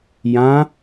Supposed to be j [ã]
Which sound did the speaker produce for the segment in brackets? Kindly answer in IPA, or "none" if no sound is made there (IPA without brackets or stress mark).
ã